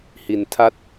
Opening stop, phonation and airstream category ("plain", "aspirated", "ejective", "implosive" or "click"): aspirated